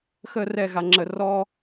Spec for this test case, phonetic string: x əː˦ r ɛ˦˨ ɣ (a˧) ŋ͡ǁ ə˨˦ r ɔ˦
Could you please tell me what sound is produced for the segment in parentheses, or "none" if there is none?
a˧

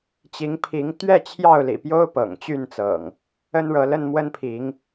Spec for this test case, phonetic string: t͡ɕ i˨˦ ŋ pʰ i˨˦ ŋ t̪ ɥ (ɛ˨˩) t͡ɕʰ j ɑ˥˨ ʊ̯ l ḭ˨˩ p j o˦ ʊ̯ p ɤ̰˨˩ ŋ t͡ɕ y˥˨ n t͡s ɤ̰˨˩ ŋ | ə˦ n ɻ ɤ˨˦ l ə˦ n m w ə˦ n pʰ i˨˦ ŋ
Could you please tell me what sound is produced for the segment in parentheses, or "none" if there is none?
ɛ˥˨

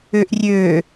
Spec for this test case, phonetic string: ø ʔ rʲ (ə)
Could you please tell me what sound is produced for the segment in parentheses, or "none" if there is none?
ø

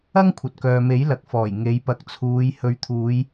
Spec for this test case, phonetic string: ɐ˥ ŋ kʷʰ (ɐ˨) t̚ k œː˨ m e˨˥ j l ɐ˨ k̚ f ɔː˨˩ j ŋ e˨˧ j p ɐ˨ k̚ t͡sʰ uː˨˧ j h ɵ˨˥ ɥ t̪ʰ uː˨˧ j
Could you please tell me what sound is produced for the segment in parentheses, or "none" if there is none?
ɐ˨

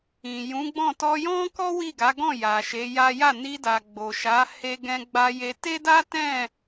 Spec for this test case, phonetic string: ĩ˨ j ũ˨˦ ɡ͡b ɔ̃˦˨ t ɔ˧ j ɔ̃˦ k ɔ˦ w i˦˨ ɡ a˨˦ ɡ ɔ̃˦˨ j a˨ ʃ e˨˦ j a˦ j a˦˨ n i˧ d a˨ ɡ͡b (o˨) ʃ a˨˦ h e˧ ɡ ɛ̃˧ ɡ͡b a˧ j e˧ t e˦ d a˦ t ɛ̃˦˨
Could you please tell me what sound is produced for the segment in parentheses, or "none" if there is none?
o˨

